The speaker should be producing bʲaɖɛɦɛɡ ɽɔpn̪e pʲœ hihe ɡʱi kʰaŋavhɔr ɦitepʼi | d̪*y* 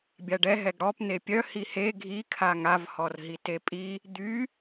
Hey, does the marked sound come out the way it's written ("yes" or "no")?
yes